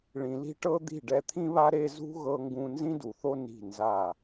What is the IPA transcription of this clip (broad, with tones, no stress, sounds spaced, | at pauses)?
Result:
ɭ ĩ˨ l i̤˧ ʈ ɤ˧ d̪ i̤˦˨ ɖ ɛ˧ t̪ʰ ĩ˦ β a˦ ɾ e˦ z ṳ˦ ɣ ɤ˧ ŋ ɡ ũ˧ n z ĩ˦ d u˨ θ o˦ n i̤˦˨ n z a˦˨